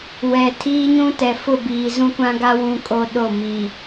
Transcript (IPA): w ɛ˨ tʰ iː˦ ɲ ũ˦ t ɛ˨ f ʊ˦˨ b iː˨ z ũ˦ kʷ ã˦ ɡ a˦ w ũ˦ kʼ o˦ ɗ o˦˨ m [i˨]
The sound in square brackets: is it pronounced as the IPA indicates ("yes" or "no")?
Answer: yes